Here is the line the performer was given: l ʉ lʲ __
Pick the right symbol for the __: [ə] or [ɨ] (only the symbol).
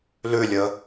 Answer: ə